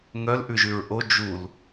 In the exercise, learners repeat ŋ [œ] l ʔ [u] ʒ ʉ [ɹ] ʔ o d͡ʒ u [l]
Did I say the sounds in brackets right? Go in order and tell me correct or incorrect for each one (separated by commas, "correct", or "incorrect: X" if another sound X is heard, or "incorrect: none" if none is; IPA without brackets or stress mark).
correct, incorrect: ʉ, correct, correct